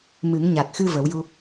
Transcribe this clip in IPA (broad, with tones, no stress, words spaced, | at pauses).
mɨ˨˩˦ŋɲa˨˩t̚xɨ˧ və˨˩˦wju˧